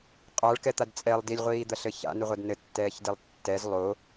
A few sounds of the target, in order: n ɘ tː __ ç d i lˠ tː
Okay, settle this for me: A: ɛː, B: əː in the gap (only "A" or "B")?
A